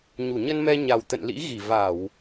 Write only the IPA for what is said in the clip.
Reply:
ɲ u˧˩ ɲ ə˧ n m ɛ˧ ɲ a˨˩ w t̪ ə̰˧˨ n l ḭ˧˥ ɣ i˧˩ v a˧˩˨ w

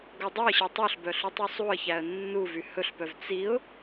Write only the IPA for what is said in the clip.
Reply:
ɡ o dˤ o ə̯ ɕ ɛ tˤ u ɬ b œ ɬ u tˤ u sˤ u ə̯ ç æ ə̯ nː u v y h ɵ ɬ p œ v t͡s i ʊ̯

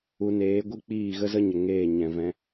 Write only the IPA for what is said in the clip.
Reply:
u˧ n eː˨˦ ɡʷ ɨ˦ k͡p iː˦˨ ɣ ə˦ z ə˦ ɲ ə˨ ŋ eː˦˨ ɲ ɛ̃˨ v ɛ̃˧

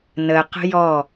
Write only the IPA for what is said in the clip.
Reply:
n ə q ə̤ j ɔ

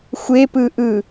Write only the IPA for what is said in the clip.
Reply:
xʷ e p ɯ ʔ ɯ

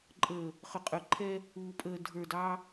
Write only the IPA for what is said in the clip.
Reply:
ǃʼ əː˨ | χ ʏ˨ qʼ œ˨ ǃʰ ɛ˦ | uː˨ pʼ əː˨ dʱ ə˞˨ d ɑ˦

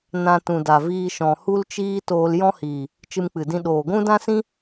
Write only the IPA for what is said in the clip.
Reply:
n ã˧ t ũ˨ d a˨ v iː˧ ʃ ɔ̃˨ h u˦ l t͡ʃ iː˦ t oː˧ l j ɔ̃˦ h iː˨ | t͡ʃ ɨ˧ m k͡p ɨ˨ d ĩ˧ ɗ oː˨ ɡʷ ũ˦ d ã˦ s ĩ˦

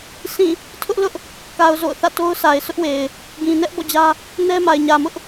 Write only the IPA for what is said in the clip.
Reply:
sʰ ĩ˦˨ | tʰ ʊ˦ ʔ l ʊ˦ ʔ | k a˨ ʊ̯ z o̰˦˨ ʊ̯ θ ä̰˦˨ t o˦ ʊ̯ sʰ a˨ ɪ̯ sʰ ʊ˦ ʔ w e˨ ɪ̯ | ɡ ĩ˨ n ɛ˦ ʔ b ɔ̰˦˨ d͡ʑ ä˦ | n ɛ˦ m a˨ ɪ̯ ɲ ä˨ m ʊ˦ ʔ

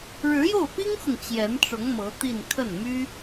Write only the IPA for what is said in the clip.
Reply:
ɻ ɻ̩˧˥ j o˥˩ ʊ̯ p i˥ ŋ x ʊ˨ ŋ t͡ɕ j ɛ˧˥ n ʈ͡ʂ ʊ˧˥ ŋ m ɤ˧˥ t̪ i˥˧ n kʰ ə˥˩ n m y˥

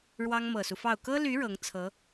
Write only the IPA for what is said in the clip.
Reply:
ɻ w ɑ˥ ŋ m ɤ˨˩ s u˦ f ɑ˥˩ ʊ̯ k ɤ˥ l y˧˥ ɻ ɤ˧˥ ŋ t͡sʰ ɤ˧˥

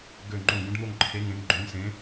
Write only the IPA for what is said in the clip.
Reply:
ɡ ø˧˩ ŋ͡ǃ õ˧˩ ɡ ũ˩˧ ɖ n̪ o˧˩ ŋ ǃʰ e˩˧ ŋ ẽ˩˧ ŋ ɡ͡ǃ õ˩˧ ŋ s ẽ˩˧

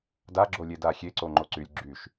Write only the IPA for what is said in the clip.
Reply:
d a ɡ͡ǁ o lʲ e d a xʲ e ǀ o ŋ͡ǃ o ǀ y lʲ ɡ͡ǁ y ʃ

